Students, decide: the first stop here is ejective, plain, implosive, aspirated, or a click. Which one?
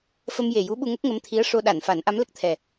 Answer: implosive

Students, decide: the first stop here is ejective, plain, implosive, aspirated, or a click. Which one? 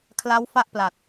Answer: aspirated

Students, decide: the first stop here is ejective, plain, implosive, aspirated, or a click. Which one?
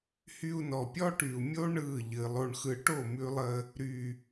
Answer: plain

